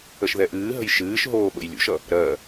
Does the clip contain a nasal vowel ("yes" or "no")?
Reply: no